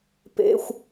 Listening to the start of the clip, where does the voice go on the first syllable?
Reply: high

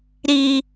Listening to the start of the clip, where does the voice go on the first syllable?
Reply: low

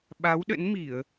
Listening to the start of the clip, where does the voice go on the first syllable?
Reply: rising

